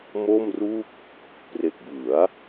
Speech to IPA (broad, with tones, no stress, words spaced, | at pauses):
mo˥˩mru˥˩k̚ | pre˨˩k̚bɯ˩˦a̯